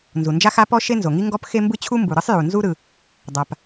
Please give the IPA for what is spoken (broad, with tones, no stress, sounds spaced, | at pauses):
n z u˩ n d͡ʒ a˥ x a˥ p ɔ˥ ʃ e˥ n z o˩ ŋ i˥ ŋ ɡ ɔ˥ p x e˥ m b ɯ˥ t͡ɕʰ u˥ m b u˩ ɾ ɯ˥ sˤ j u˩ n z u˥ ɾ ɯ˩ | dˤ a˩ p